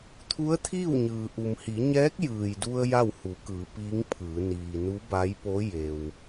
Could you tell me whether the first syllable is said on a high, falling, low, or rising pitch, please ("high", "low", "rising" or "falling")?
rising